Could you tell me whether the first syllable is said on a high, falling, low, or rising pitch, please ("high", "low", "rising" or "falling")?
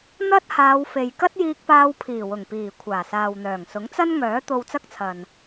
high